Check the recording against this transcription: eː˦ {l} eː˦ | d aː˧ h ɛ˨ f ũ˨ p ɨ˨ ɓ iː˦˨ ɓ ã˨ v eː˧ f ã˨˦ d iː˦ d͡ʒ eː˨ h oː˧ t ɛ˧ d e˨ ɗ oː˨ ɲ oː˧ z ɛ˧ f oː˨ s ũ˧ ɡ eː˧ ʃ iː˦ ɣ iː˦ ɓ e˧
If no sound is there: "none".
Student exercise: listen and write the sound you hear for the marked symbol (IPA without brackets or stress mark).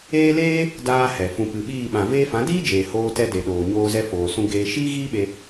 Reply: l